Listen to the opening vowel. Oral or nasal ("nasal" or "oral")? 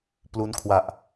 oral